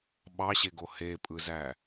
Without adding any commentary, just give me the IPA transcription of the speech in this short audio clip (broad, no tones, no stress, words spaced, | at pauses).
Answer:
ɓɑɕeɡo hepʼɯzæ